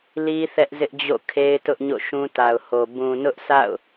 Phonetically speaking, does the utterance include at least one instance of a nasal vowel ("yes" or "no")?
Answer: yes